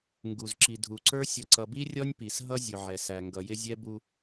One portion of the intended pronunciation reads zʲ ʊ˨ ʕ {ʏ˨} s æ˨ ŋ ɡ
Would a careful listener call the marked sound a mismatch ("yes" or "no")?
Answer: yes